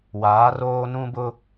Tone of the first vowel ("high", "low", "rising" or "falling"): rising